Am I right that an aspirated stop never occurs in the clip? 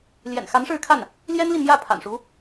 no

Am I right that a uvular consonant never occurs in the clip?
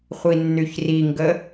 no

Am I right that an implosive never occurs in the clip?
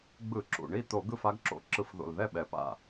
no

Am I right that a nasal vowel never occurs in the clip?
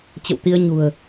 yes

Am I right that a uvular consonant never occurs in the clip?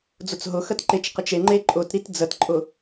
no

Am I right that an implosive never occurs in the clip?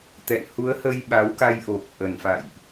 no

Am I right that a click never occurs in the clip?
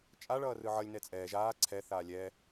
no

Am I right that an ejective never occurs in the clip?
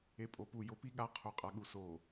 no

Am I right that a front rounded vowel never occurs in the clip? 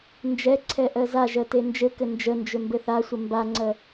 no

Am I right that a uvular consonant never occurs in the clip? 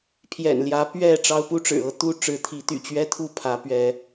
yes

